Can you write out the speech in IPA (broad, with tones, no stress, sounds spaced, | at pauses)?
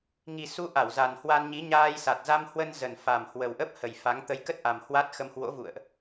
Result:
ŋ i˨˩ s u˨˦ ʔ a˧˩ w z a˨˩ n h w a˧ n ɲ i˨˦ ɲ aː˧ j s a˨˩ t̚ z a˧ m h w ə˧ n z ə˨˩ n f a˨˩ m h w ə˨˩ w ʔ ə˦˥ p̚ h ə˨˩ j f a˨˦ ŋ t̪ ə˨˦ j k ə˦˥ t̚ ʔ a˨˩ m h w a˦˥ t̚ x ə˧ m h w o̰˧˥ v ṵ˧˨ ə̯ ʔ